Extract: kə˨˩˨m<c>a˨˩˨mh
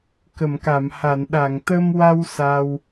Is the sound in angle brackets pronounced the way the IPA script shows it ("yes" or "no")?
no